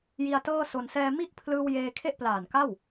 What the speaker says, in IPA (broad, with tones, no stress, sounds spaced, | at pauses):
j i˧ a̯ t ɤː˥˩ s o˧ n s ɛː˧ m i˥˩ ʔ pʰ l ɯː˧ w j eː˧ kʰ e˥˩ ʔ p l aː˨˩ n k a˥˩ w